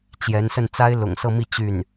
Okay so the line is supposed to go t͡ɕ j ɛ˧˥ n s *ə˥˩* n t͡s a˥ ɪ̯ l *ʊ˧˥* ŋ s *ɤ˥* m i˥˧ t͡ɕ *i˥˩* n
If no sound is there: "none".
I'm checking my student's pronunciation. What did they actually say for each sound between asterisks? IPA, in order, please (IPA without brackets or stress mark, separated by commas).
ə˥˩, ʊ̰˨˩, ɤ˥˧, y˥˩